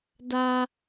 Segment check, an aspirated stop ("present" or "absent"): absent